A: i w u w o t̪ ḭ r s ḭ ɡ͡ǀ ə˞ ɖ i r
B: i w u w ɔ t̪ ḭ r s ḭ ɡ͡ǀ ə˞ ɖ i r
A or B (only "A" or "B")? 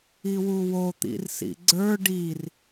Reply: A